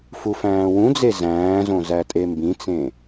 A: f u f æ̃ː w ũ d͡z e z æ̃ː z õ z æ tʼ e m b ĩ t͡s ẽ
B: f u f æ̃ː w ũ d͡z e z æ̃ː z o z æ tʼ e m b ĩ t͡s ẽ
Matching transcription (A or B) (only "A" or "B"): A